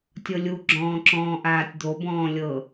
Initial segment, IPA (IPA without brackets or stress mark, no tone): tʲ